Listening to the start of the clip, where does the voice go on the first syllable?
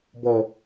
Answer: low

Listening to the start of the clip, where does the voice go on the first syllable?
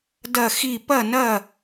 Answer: falling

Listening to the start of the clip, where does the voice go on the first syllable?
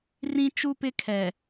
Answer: high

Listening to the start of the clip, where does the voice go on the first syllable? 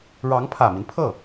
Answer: rising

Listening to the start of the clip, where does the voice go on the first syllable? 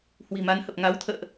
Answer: low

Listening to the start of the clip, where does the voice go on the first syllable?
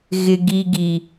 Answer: low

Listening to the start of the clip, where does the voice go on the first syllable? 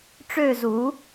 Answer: falling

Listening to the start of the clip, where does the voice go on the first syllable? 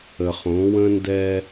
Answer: low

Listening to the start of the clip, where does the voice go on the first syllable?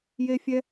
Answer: high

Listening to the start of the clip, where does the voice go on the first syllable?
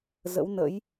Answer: rising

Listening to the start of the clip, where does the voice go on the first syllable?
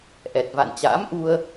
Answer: low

